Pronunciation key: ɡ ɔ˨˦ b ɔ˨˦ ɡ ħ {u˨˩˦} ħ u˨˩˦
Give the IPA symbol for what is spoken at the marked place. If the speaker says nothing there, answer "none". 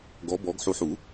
u˨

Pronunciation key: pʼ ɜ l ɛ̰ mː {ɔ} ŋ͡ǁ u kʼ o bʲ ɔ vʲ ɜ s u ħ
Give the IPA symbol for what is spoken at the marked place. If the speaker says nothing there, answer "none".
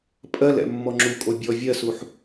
ɔ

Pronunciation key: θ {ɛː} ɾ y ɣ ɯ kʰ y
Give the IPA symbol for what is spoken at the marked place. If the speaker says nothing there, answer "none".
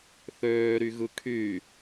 øː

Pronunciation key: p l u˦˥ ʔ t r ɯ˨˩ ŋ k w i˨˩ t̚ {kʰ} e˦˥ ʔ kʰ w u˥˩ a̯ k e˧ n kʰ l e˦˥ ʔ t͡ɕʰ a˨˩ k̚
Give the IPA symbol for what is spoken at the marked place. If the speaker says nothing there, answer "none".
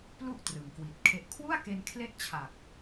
kʰ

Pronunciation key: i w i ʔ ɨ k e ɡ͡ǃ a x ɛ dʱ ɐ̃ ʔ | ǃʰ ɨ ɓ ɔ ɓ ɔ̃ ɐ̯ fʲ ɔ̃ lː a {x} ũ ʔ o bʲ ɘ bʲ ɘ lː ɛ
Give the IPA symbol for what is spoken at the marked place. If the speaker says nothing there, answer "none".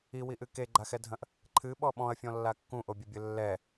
kː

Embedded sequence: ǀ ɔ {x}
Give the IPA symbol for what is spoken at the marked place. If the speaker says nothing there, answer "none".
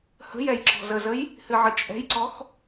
x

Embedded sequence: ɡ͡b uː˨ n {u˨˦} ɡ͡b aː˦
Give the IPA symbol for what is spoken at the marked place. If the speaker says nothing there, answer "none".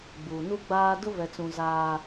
u˦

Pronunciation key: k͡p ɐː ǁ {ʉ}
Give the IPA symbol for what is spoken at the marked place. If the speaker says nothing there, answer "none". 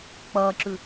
ʉ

